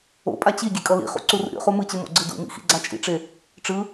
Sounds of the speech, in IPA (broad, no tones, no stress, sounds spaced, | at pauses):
o̰ pʼ a t͡ɕ i ɡʲ e kʼ ʌ l ḭ χ ṵ ǀ u r ṵ ɾʲ o̰ χ u m ɯ t͡ɕ ɯ m o̰ ɡ͡ǀ ɯ d ṵ m ḭ x ḭ ɡ͡ǀ a t͡ʃʼ ḭ ʈ͡ʂ e | ʈ͡ʂ ɯ